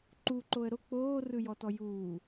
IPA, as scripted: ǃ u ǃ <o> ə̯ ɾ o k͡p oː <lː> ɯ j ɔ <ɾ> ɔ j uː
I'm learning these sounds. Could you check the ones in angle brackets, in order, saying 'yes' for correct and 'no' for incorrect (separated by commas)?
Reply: yes, no, no